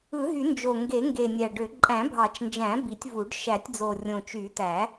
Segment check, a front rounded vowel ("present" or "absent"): present